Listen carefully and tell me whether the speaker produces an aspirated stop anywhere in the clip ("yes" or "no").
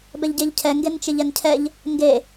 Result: yes